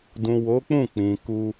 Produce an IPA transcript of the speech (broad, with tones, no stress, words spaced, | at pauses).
dũ˨wo˨˦ k͡pũ˦˨k͡pĩ˨ ku˧